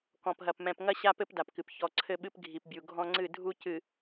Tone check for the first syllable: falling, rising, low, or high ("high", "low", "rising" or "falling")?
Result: low